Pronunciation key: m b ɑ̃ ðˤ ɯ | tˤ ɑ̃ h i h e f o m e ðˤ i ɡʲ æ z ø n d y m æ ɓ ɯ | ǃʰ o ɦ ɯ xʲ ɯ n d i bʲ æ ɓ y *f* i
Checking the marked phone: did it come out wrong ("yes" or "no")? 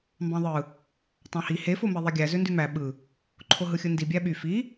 no